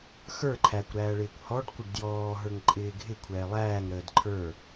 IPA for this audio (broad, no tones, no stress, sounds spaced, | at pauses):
x ə˞ ǃʰ æ kʷ ɾ æː ɭ ɪː kʷ h ɔ ɖ kʷ ə ɖ d j ɔː ɦ ə˞ ŋ ǃʼ ɪː ɡʱ ɪ kʷʰ ɛː lˠ æː ŋ ɾ əː d ǃʰ ə˞